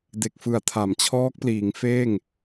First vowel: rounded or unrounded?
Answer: unrounded